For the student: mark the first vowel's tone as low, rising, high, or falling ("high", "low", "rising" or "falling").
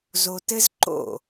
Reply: low